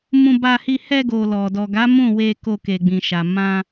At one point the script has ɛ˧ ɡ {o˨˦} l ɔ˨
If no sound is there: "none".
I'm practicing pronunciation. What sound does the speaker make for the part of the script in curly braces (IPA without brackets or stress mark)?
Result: o˨